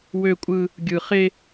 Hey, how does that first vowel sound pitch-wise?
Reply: high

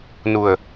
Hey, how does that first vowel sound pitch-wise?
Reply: low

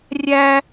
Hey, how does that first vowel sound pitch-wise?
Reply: high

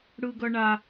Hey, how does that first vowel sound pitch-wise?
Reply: high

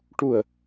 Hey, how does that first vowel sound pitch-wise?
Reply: low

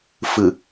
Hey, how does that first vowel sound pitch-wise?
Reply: low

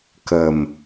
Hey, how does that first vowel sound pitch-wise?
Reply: low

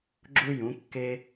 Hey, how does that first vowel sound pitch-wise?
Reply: high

